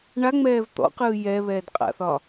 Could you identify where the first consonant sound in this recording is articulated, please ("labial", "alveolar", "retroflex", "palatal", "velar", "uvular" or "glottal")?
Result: retroflex